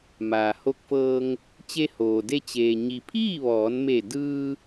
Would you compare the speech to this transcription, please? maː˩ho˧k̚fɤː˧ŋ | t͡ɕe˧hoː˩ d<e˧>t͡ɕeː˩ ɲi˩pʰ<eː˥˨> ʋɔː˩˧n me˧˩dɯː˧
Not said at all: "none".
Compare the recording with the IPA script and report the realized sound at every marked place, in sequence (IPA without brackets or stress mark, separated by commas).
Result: e˧, iː˥˨